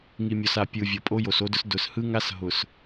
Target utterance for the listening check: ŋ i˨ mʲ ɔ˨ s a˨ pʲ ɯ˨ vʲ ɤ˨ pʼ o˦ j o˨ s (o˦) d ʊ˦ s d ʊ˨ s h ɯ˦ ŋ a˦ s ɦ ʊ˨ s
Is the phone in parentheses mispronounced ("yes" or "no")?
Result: no